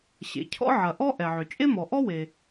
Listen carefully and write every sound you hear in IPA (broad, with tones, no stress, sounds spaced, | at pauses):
ɕ ḛ˩ cʰ ɔ̰˥ ʕ ɐ˩ ʔ ɔ˥ ʔ ɛ˩ ʕ ʏ˩ t͡ʃʼ e˥ m ɔ˩ ʔ ɔ˥ w e˩